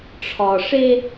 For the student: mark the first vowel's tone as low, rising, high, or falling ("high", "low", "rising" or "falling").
low